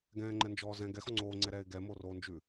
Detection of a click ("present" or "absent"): present